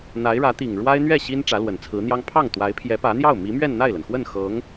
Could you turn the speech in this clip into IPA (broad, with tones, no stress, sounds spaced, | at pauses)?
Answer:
n̪ a˧˥ ɪ̯ ɻ ä˧˥ t̪ i˨˩ ŋ ɻ w a˥ ɪ̯ n̪ ɥ ɛ˥˩ ɕ i˥ n ʈ͡ʂ ä˧˥ l w ə˨˩ n t͡sʰ ɹ̩˧˥ n̪ j ɑ˥ ŋ pʰ ɑ˥˩ ŋ t̪ w a˧˥ ɪ̯ pʰ j ɛ˧˥ p ä˧˥ n̪ j ɑ˥˩ ʊ̯ m i˧˥ m ɥ ɛ˥˧ n n̪ a˥˩ ɪ̯ l ə˩ n x w ə˥˩ n x ɤ˧˥ ŋ